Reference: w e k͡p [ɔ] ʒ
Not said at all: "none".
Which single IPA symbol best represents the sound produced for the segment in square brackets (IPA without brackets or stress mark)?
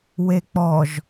ɔ